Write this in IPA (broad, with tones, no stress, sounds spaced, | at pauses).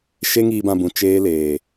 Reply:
ʃ e˦ ŋ iː˧ b ã˧ b ũ˨ t͡ʃ eː˦ l eː˨